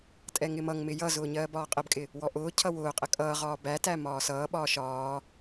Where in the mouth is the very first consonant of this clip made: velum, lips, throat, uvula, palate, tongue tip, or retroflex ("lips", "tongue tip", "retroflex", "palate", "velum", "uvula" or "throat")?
tongue tip